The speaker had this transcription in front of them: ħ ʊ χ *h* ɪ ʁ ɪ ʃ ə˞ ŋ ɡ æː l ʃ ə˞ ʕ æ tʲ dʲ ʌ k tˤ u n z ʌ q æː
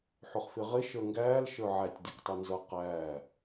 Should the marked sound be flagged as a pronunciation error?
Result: yes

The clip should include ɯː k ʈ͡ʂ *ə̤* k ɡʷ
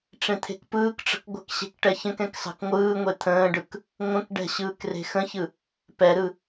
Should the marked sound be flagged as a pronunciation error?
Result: no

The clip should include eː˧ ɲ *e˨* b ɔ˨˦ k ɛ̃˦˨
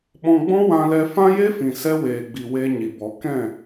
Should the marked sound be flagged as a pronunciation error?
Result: yes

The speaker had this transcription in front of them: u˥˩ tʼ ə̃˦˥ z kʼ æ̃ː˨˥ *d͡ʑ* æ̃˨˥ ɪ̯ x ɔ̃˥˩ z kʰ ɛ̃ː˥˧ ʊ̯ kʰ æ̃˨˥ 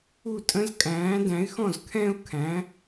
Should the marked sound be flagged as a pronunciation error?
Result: yes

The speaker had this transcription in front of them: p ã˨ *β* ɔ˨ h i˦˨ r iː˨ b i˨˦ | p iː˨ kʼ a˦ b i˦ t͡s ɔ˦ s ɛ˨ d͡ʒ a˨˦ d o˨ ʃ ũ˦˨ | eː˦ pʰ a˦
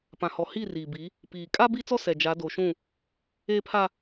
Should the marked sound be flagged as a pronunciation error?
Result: yes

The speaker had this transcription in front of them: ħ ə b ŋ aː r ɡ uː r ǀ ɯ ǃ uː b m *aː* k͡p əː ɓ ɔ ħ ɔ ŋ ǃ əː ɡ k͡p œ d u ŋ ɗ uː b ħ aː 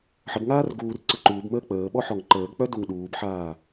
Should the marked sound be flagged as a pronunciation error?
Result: yes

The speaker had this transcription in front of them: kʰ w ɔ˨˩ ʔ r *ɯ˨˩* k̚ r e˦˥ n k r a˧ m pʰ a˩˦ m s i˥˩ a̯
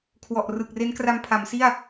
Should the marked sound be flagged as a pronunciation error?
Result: no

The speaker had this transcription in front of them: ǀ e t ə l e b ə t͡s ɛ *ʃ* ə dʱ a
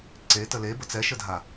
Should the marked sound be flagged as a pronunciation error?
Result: no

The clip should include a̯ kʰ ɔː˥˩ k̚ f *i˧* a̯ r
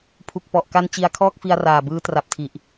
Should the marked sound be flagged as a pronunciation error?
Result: no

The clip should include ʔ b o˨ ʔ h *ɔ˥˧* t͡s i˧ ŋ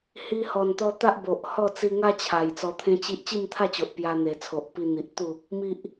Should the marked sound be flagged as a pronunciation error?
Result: no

